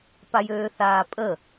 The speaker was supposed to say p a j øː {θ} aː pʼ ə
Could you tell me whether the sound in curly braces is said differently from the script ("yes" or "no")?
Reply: no